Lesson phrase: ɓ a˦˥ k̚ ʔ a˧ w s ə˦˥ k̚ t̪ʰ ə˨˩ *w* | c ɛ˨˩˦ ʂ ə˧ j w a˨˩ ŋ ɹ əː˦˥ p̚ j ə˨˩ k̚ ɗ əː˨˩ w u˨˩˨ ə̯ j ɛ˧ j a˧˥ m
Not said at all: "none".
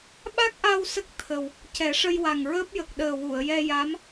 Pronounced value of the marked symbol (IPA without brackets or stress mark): w